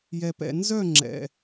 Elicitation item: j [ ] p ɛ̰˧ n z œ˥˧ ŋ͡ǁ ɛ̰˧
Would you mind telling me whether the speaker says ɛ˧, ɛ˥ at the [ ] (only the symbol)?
ɛ˧